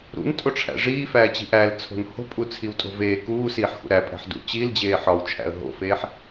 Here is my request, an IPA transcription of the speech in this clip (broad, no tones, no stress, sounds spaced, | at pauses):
ɾ ṵ n tʼ o ʈ͡ʂʰ æ̰ ʐ iː f æː t͡ɕ i̤ ʔ æ l t͡sʰ o̤ n h o̤ pʼ u t͡sʰ i w tʼ o̤ v eː k uː s iː ħ x ṵ ɾ æ pʼ æ̤ ħ d ṵ t͡ɕ i l d͡ʑ eː ħ ɒ w t͡ʃʰ æ̰ ə̯ ɦ o̰ f eː ħ